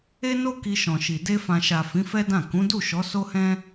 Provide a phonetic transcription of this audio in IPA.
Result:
e˦no˦ ki˧ʃɔ̃˨ʃi˨ de˧fã˨ʃa˨ fĩ˨˦fɛ˦dã˦˨ kũ˨˦du˦˨ʃɔ˨˦ so˦hɛ̃˦

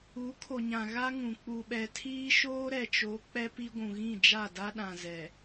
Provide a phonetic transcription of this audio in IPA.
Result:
u˨˦ kʰo˨ɲã˨ ɣa˦ŋũ˨ k͡pu˨ɓɛ˨tʰiː˦ ʃoː˦ɾɛ˨t͡ʃo˨˦ k͡pɛ˦pi˦ɡʷũ˨ ɣĩ˦˨d͡ʒa˦˨da˦ ɗã˨zɛ˨

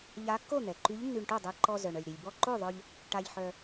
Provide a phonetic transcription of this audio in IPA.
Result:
ʎa˧˥kːo˥˨n̪ɛ˩ǃy˧˥ʎ nːy˧ɳʈo˥˨dˤɛ˧ ǃɔ˧zœ˩ɳ œ˩lʲɾi˩lʲbɔ˥˨ ǃo˥˨ðˤœ˧ʎ | ʈa˧ʎħœ˧

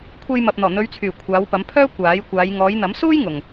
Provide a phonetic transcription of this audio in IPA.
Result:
kʷʰe˧jmɐ˨p̚ n̪ɔː˨˩n̪ɵ˨˧ɥt͡sʰyː˨˩ kʷʰaː˨˧wpɐ˨˧mpʰœː˥ kʷaː˨˥jkʷaː˨˧j ŋɔː˨˧jn̪ɐ˨˥msuː˥j ŋʊ˨ŋ

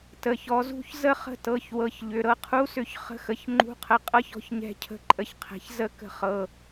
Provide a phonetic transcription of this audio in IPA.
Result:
tə˩˧˩çɔ˨˦zṳ˧˥˧ç zə˥˩χə̤˥˩tɤ˩˧˩çwɤ˩˧˩ç ʎʏ˩˧˩ɾɤ˥˩qʰu˧˥˧sʏ˥˩ç χə̤˧˥˧xə˩˧˩ç ŋ͡ǃṳ˧˥˧qʰə˨˦ qʼɤ˦˥çɔ̤˥˩ç ɲɛ̤˥˧cʰə̤˥˧ǃʼə˥˩çqʰɛ̤˨˦ç zə˥˧ kə̤˥˩χɤ˩˧˩

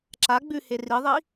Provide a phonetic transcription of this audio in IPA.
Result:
ǁa ɡ͡bʉhe riðˤi

